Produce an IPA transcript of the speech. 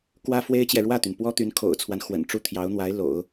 k w ä˥ f w e˥ ɪ̯ t͡ɕ j ɛ˨ ɻ w ä˥˩ t̪ y˩ n p w ɔ˥ t̪ y˧˥ n kʰ o̰˨˩ ʊ̯ t͡sʰ w a˦ n x w ə̰˨˩ n ʈ͡ʂ u˥˩ t̪ʰ j ɑ˧˥ ʊ̯ n̪ w a˧˥ ɪ̯ l o̰˨˩˦ ʊ̯

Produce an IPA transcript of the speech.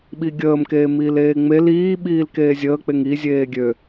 ɓ i ɡʲ əː m k eː m iː l eː ŋ͡m e l iː ɓ iː l k eː zʲ əː k͡p e ŋ i zʲ eː ɡʲ ø

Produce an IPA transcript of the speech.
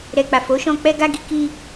ɾ ɛ˨ k͡p a˨ f o˨˦ ʃ ɔ̃˧ k͡p ɛ˧ ɡ a˧ ɡ i˧ k i˧

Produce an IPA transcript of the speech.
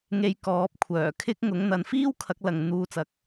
ŋ e˧ j k ɔː˨˥ p̚ kʷʰ œː˨˩ kʰ ɪ˥ k̚ ŋ ʊ˨˥ ŋ n̪ ɐ˨˧ n f iː˥ w kʰ ɐ˨˥ k̚ l ɐ˨ ŋ n̪ uː˧ t͡s ɐ˨ k̚

